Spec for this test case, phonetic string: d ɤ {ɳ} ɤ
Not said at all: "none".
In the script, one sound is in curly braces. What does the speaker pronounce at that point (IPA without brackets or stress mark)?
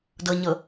ɲ